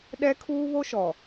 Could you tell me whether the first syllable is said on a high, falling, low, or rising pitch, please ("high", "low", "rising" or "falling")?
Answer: high